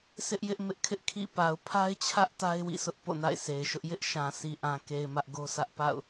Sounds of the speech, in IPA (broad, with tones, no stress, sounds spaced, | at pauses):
s ɪ˦ ʔ j ɪ˦ ʔ m ɪ˦ ʔ kʰ ɪ˦ ʔ kʰ ḭ˦˨ p a˨ ʊ̯ pʰ a˦ ɪ̯ t͡ɕʰ ä˦ ʔ t a˦ ɪ̯ w ḭ˦˨ s ʊ˦ ʔ p o̰˦˨ n a̰˦˨ ɪ̯ sʰ e˨ ɪ̯ ʃ ʊ˦ ʔ j ɪ˦ ʔ ʃ ã˨ sʰ i˨ ʔ ã˨ k e˨ ɪ̯ m ä˦ ʔ ɡ o˦ s ä˦ ʔ p a̰˦˨ ʊ̯